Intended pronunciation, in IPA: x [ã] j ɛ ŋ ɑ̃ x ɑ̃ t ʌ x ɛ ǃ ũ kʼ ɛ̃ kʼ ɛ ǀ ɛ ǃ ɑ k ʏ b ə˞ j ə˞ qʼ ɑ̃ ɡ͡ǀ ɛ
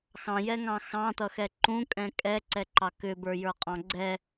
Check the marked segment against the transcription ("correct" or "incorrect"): incorrect